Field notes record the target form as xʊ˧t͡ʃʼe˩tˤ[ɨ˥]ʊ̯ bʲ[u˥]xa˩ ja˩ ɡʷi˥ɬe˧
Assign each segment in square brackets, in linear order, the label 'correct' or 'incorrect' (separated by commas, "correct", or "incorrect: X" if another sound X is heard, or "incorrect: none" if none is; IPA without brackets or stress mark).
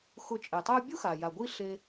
incorrect: i˥, correct